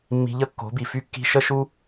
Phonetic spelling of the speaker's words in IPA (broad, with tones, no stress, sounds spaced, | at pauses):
mː i̤˧ ʎ ə˦ kː o̤˨˦ b i˨ f y˦ kː i̤˦ ʃ ə˦ ʃ u˦